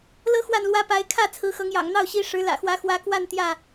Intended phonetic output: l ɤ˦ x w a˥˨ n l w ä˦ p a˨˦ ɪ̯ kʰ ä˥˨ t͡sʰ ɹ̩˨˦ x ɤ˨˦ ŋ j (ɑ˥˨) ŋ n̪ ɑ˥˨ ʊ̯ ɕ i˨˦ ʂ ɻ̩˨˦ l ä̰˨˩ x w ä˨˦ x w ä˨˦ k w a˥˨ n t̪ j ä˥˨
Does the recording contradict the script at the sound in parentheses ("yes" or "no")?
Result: yes